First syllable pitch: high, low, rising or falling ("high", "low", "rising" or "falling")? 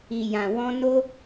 low